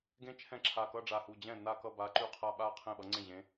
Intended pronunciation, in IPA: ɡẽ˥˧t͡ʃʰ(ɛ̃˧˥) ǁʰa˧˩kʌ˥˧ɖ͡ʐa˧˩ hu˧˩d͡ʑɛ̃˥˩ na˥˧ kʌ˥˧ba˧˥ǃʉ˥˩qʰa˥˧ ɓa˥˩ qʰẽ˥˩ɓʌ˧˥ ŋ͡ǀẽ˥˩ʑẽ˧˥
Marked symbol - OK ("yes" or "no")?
no